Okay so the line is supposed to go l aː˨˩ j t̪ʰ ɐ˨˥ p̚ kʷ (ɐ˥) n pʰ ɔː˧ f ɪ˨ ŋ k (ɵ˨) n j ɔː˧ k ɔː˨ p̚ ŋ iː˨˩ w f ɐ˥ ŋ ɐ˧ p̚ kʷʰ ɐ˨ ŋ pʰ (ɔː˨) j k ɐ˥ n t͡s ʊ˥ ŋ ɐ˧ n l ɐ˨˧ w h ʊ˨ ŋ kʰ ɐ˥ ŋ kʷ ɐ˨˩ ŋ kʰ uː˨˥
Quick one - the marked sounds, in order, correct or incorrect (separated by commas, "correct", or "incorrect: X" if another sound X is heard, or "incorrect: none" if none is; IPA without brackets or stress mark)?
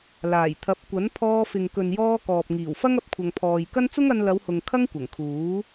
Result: incorrect: ɐ˨˥, correct, correct